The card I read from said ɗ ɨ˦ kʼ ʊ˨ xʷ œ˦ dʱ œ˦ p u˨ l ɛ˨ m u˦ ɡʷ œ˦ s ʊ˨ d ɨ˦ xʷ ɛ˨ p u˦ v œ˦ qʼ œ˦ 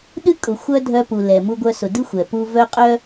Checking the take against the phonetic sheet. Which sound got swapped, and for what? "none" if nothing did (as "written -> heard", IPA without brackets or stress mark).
none